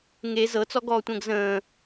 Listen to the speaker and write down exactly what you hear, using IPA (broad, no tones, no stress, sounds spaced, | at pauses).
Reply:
ŋ e z ɤ t͡s ɔ ɡ ɔː tʷ ə̃ː ɡ z ə̃ː